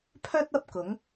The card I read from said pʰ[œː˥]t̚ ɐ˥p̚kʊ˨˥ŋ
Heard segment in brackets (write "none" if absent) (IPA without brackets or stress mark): œː˥